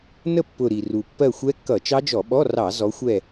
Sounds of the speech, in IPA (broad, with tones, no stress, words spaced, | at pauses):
nə˦˨pːʊ˨˩ ɾi˨˩ru˨˩ pːɜ˦˨xʷɛ˦˥kːʌ˧˩˧ t͡ʃɑ˦˥d͡ʒɔ˧˩˧ɓɔ˧˥˧ rɑ˧˩˧ zɔ˨˦xʷɛ˦˨